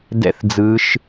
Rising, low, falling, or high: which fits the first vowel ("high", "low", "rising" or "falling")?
falling